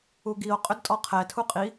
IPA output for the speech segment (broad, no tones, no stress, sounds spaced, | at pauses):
u ɡ i o̯ qʼ ʏ d tʼ ɔ qʰ ɛ tʰ u qʼ i